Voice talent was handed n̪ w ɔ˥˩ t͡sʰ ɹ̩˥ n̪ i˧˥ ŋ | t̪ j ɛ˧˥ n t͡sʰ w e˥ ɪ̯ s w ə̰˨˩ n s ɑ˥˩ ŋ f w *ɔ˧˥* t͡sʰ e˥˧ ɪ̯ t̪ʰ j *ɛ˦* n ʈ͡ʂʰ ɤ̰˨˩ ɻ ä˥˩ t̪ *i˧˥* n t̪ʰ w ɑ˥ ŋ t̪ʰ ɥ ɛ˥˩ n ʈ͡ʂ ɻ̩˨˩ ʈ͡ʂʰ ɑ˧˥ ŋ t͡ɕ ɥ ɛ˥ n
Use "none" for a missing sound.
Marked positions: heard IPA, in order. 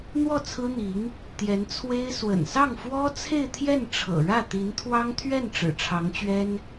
ɔ˥, ɛ˥˩, i˧˥

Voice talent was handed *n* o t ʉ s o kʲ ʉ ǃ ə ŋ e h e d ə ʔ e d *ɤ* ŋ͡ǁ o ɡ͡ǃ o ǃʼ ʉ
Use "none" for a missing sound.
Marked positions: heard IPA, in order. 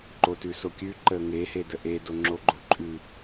ǃ, o

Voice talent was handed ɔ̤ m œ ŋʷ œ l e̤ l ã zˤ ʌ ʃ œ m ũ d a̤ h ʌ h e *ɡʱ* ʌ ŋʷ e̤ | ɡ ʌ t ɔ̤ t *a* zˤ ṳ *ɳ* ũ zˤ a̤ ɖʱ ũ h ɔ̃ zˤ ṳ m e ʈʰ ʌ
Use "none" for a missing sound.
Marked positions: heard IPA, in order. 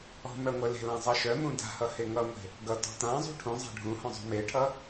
ŋ, ã, ʈʰ

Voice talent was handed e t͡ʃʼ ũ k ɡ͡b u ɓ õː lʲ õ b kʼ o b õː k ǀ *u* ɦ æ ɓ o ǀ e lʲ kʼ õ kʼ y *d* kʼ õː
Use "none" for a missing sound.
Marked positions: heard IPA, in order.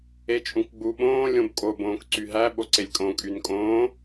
y, n

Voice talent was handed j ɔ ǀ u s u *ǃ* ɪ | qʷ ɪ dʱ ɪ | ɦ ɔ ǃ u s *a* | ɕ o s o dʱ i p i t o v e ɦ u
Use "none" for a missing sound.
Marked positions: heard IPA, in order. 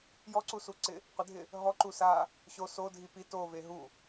ǀ, a

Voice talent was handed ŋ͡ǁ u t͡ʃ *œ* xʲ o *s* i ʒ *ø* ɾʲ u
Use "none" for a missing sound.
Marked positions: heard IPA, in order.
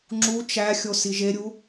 æ, s, e

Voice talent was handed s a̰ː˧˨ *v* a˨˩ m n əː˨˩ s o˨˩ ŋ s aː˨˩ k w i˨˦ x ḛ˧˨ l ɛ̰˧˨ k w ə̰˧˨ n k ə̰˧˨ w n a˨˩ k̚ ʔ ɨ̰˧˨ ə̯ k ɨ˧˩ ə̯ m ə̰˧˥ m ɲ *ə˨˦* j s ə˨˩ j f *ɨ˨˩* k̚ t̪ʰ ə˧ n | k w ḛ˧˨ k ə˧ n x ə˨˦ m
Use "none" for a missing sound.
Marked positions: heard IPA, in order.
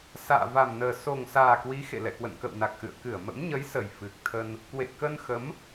v, ə˨˦, ɨ˨˩

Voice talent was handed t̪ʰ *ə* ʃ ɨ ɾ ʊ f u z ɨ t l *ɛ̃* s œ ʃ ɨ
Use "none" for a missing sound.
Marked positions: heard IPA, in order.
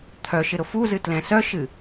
œ, ɛ̃

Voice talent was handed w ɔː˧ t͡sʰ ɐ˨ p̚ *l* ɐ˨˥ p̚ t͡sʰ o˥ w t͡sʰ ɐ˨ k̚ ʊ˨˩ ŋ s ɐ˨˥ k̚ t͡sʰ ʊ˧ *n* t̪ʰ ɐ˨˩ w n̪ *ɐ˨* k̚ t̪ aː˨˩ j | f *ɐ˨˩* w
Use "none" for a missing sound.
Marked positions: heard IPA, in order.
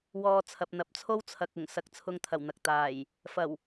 n̪, ŋ, ɐ˨, ɐ˨˩

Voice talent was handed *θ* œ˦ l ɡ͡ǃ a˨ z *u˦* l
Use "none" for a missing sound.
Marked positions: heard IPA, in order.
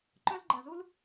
ǃ, u˦

